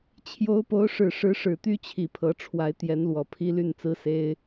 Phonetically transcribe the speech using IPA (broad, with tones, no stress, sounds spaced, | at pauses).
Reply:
t͡ɕʰ j o˧˥ ʊ̯ p o˧˥ ʊ̯ ʂ ɻ̩˨˩ ʂ ɻ̩˧˥ ʂ ɻ̩˨˩ t̪ y˥ t͡ɕʰ i˨˩ pʰ ɤ˧˥ ʈ͡ʂʰ w a˧˥ ɪ̯ t̪ j ɛ˧˥ n l w ɔ˨˩ pʰ i˥ l y˥˩ n t͡s ɹ̩˥ s e˥ ɪ̯